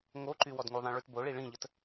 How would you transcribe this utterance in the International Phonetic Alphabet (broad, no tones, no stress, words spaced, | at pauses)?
ŋoǃy wɔdŋuðˤĩ ɭytboɭi ɭĩʎət